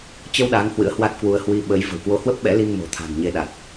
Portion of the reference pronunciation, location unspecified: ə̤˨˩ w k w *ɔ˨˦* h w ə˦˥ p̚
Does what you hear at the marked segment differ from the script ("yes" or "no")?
yes